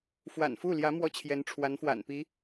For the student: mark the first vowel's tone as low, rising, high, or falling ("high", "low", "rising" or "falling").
low